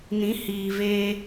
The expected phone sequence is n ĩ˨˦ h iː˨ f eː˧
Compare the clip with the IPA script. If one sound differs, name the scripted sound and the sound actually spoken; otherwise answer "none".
f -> v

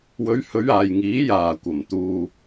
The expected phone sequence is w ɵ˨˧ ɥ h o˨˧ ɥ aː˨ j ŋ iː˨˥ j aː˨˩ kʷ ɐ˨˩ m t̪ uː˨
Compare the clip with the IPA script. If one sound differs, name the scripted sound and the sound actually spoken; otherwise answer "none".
o˨˧ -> ɵ˨˧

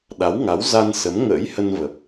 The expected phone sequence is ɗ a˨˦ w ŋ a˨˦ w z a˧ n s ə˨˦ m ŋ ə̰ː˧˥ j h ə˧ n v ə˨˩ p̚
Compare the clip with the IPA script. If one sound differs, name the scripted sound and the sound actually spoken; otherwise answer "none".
none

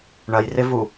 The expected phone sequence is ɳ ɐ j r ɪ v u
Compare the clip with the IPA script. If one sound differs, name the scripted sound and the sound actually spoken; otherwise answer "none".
none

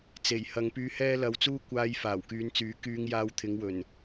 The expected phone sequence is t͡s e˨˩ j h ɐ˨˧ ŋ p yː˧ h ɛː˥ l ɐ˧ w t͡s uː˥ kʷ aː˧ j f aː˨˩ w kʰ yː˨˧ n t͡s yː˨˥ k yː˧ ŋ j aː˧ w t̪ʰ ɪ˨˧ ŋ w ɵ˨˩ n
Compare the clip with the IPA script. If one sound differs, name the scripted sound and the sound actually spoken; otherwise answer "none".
kʰ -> k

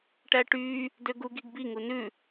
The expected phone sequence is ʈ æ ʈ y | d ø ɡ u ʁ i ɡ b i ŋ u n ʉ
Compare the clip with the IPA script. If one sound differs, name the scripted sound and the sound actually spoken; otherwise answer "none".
ʁ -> ɡ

